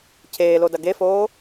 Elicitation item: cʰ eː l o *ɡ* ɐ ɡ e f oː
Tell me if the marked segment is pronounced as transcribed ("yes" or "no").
no